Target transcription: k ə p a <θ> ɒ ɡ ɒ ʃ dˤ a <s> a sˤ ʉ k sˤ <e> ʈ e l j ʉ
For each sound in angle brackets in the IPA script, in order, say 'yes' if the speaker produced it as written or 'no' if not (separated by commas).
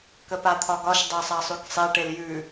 no, no, yes